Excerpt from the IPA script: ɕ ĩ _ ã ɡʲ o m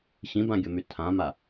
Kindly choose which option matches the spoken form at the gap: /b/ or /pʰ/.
b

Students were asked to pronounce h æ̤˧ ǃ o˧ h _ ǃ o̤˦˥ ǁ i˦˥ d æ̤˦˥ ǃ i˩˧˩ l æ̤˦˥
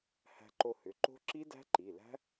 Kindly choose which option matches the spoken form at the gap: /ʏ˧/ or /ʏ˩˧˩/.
ʏ˩˧˩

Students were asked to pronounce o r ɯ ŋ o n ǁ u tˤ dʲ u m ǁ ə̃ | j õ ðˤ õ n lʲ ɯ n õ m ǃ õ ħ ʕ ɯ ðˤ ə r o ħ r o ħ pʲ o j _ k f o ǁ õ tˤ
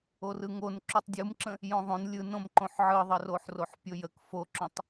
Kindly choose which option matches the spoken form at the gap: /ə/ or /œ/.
ə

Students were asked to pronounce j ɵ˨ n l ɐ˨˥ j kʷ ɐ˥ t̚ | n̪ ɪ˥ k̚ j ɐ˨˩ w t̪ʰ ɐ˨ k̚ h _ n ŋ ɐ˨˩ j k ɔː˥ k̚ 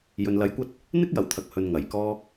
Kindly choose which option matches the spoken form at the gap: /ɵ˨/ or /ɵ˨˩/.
ɵ˨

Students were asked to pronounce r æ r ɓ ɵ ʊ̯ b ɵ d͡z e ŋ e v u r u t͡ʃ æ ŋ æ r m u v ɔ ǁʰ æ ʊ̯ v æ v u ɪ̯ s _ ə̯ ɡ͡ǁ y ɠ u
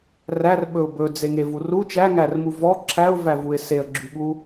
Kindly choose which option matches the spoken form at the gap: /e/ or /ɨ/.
e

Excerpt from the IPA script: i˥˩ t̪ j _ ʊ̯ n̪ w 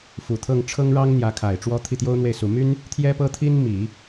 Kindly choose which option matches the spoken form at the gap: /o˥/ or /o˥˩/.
o˥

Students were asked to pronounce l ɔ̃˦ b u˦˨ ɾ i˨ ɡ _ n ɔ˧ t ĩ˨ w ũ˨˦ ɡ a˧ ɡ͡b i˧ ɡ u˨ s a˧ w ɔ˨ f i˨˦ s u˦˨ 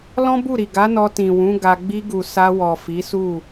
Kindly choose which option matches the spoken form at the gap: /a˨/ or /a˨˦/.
a˨˦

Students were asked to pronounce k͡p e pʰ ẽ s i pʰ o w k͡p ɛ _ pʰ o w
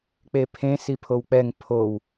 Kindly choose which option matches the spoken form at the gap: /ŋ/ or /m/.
ŋ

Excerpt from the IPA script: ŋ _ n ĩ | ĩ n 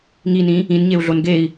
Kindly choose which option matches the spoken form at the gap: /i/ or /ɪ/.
i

